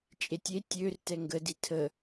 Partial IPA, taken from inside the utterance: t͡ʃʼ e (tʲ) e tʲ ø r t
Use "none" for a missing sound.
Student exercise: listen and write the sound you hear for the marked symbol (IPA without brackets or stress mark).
tʲ